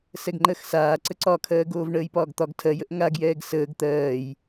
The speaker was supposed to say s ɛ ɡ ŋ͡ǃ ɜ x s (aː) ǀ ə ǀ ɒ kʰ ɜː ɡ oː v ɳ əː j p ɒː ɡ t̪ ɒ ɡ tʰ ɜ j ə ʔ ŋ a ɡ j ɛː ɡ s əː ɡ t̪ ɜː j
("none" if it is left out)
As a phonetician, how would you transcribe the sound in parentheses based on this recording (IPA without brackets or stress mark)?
aː